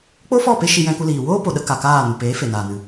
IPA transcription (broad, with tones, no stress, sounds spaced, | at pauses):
k͡p o˦ f ɔ˦˨ p e˧ ʃ i˧ j ɛ̃˧ k u˧ l iː˨ w oː˦ p o˨ ɗ ə˧ k a˨ k aː˦˨ n u˨ p eː˨˦ f e˨ n aː˨ n ɨ˨